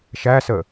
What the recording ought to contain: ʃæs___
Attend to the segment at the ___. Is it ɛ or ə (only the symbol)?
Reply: ə